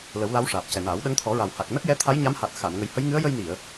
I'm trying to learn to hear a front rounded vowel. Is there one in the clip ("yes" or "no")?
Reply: no